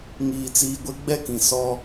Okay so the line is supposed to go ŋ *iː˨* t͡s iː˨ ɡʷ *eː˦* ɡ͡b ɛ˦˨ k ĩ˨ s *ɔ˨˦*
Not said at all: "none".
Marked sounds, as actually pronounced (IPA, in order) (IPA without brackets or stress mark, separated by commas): iː˨, e˦, ɔ˦